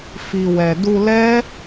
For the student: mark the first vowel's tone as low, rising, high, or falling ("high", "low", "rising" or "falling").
low